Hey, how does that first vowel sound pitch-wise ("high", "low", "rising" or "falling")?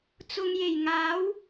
low